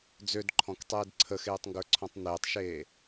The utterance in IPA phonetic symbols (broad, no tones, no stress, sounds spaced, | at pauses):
d͡z ø d ǃʰ ɔ̃ k tˤ eː d ǀʰ ə x eː tˤ ŋ ɡ ə˞ ǀʰ ɔ̃ tˤ n̪ eː tˤ ʃ eː